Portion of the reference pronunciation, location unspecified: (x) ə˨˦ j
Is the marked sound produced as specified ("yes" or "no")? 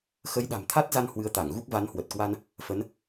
yes